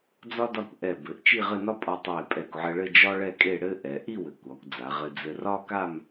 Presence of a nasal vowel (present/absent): absent